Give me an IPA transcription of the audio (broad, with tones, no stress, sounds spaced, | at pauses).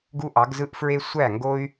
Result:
ɡ u˦ ʔ ɑ˨˦ ɡ z ɯ˦ ʔ f ɹ e˦ sʷ æ˦˨ ŋ ɡ o˦ y̯